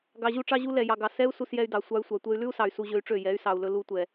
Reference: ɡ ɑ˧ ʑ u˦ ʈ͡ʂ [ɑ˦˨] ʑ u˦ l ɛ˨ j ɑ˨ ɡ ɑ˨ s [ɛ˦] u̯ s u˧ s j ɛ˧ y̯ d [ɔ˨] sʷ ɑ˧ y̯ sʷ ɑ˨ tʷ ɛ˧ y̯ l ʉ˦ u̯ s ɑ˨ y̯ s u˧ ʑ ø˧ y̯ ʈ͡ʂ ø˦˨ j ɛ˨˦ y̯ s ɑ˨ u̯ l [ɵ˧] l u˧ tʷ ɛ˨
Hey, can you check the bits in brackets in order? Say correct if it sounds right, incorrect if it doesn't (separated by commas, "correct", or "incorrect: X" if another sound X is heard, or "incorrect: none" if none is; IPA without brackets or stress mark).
incorrect: ɑ˦, correct, incorrect: ɑ˨, correct